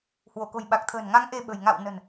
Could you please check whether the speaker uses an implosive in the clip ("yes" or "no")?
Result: yes